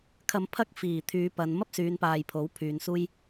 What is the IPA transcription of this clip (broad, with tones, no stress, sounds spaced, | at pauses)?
kʰ ɐ˧ m pʰ ɐ˥ k̚ f iː˨˩ t̪ʰ yː˨˧ p ɐ˨˧ n m ɐ˥ p̚ s yː˨˧ n p aː˨ j pʰ o˨˥ w pʰ yː˨ n s uː˥ j